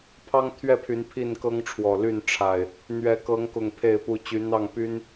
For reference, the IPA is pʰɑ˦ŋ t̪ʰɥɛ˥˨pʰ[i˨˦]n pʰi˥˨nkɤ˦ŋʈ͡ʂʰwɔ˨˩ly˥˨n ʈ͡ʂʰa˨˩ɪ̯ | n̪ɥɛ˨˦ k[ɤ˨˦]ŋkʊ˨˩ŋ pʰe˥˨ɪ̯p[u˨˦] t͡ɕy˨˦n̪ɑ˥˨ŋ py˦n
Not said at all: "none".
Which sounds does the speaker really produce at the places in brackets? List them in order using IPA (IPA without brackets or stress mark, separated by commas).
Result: y˨˦, ɤ˨˦, u˦